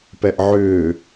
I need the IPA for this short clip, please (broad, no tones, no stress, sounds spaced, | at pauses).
p ɛ ʔ ʕ ʏː